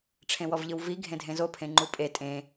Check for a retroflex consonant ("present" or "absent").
present